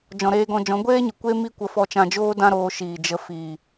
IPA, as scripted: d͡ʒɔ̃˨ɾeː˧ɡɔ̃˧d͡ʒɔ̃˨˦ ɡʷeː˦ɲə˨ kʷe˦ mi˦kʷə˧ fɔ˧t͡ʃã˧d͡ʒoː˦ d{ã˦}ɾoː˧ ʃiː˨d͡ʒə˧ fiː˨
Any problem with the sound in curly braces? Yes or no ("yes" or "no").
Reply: no